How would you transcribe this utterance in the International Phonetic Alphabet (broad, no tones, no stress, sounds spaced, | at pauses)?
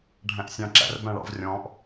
ɖʱ æ̃ ʔ sʲ ɑ̃ ǁ æ̰ r b æ̃ ɭ ɑ̰ v rʲ ɔ̃ː ʔ